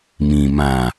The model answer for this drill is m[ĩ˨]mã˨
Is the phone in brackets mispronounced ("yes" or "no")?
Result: no